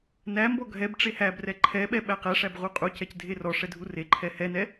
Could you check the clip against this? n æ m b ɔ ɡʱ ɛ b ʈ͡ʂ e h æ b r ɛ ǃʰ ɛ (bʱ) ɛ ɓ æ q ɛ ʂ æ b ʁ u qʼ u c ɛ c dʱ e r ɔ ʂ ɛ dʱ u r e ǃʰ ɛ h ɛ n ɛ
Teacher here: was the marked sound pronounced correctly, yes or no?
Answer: no